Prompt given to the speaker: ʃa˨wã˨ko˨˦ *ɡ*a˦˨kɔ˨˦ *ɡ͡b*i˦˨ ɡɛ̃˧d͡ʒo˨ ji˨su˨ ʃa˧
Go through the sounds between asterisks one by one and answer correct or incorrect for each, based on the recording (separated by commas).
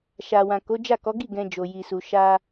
incorrect, incorrect